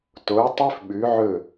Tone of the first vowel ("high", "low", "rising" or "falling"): rising